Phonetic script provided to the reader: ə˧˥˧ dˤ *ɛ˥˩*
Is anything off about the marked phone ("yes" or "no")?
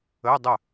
yes